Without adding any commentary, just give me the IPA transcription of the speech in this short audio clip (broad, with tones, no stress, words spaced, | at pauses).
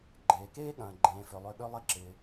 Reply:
ɡ͡ǃeː˩keː˥ɠɐ̃ː˩ ɡ͡ǃẽː˩fʏ˩lˠø˨ ɠø˦lˠɪ˦ǁɪː˩